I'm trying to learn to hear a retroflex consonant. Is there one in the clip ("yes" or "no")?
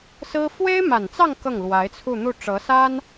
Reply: yes